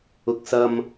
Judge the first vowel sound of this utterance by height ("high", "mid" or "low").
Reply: high